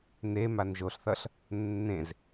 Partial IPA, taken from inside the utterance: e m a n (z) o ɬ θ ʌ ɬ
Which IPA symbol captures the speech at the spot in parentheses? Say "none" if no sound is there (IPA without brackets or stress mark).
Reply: ʒ